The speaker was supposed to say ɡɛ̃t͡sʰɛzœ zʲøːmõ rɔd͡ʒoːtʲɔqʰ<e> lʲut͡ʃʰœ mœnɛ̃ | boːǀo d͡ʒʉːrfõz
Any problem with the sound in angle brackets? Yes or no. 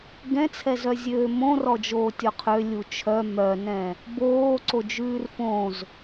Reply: yes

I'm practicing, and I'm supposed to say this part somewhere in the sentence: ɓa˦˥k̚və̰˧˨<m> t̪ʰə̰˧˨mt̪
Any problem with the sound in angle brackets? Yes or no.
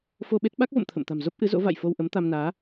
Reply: no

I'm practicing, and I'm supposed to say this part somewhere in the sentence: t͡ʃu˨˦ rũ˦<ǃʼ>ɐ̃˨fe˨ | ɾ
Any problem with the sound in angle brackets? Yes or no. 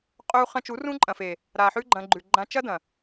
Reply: no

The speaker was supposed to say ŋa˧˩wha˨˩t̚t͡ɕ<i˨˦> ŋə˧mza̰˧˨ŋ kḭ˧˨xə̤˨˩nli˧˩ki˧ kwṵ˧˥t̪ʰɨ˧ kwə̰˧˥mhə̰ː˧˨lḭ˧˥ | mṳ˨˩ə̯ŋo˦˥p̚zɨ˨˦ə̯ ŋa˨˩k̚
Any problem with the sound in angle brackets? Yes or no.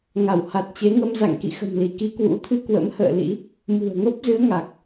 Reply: yes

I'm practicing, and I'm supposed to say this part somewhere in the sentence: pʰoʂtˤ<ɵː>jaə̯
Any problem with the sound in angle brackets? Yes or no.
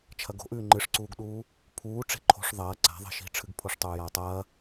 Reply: yes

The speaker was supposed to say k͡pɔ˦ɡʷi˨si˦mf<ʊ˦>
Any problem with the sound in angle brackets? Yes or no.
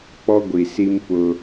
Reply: no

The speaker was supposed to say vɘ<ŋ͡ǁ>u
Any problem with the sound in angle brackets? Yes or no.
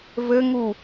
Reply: yes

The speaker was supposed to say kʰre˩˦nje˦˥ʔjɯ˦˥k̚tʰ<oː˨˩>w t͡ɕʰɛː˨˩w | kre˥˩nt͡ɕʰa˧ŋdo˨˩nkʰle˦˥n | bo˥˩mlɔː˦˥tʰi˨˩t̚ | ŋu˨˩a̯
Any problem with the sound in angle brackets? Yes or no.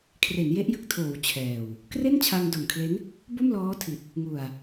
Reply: no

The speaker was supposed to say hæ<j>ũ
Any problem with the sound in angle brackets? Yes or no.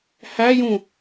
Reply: no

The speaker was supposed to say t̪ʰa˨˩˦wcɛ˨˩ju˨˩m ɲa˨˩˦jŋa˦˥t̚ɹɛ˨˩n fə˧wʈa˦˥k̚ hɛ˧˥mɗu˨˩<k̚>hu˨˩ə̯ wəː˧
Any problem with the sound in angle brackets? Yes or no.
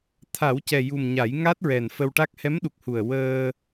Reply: no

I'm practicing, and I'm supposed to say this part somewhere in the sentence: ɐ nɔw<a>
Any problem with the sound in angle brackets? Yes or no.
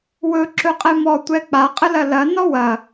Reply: yes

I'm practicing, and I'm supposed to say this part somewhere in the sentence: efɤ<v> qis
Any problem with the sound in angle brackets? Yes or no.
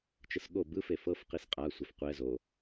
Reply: yes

